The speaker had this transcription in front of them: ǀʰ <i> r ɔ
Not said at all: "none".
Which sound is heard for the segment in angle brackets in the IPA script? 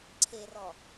e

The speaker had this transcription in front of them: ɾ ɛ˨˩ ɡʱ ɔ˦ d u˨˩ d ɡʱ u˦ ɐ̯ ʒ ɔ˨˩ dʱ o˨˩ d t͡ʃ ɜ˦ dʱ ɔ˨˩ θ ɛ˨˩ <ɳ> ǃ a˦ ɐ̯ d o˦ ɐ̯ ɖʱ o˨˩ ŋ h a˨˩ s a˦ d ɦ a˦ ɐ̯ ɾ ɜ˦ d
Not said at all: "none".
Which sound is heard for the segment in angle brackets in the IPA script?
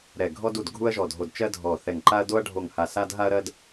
ŋ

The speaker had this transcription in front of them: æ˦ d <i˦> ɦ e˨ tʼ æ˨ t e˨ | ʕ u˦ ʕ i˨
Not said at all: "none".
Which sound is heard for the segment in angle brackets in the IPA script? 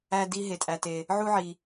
i˦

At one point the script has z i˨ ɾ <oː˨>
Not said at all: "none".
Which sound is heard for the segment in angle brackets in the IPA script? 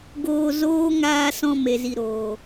oː˨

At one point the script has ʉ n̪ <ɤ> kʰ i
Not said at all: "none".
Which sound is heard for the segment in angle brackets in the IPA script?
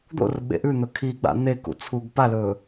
ɵ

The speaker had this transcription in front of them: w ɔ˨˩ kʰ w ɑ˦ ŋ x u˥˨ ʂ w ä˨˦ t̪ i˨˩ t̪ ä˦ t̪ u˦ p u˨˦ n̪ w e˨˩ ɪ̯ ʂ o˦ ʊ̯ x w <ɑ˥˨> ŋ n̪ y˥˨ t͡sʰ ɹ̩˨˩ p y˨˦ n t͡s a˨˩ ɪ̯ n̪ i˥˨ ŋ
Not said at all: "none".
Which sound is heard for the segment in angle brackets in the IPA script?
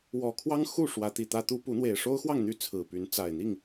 ɑ˥˨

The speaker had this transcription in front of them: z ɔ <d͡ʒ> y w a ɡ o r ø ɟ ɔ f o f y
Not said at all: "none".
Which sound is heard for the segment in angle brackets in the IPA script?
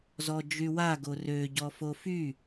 d͡ʒ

